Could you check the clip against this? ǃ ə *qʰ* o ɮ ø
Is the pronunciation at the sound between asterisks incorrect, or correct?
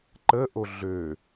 incorrect